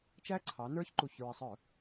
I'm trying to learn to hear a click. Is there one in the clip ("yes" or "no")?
yes